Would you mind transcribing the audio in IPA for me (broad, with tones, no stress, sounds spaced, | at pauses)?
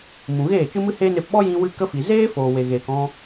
m ũ˨ ɣ eː˦˨ t͡ʃ ɨ˦ m ɨ˦ h eː˦ n e˧ p ɓ ɔ˦ j ĩ˧ w ɨ˧ k ə˦ f i˨ z eː˦ f oː˨ w e˨ ɣ eː˨ k ɔ̃˧